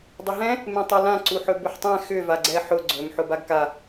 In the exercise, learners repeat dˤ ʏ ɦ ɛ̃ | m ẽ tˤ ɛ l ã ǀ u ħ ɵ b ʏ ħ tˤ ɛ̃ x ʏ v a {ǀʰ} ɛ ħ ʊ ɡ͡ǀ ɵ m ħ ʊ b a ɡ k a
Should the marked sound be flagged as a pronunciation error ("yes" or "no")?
yes